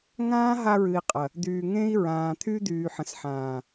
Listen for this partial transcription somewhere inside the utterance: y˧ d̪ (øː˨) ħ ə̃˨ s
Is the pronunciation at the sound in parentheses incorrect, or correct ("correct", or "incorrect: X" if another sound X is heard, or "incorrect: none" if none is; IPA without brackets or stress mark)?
incorrect: yː˨